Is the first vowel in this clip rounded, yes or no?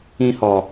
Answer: no